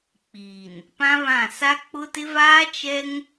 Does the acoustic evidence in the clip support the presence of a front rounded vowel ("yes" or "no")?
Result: no